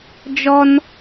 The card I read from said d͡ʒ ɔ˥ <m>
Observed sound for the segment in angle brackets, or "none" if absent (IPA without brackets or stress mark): n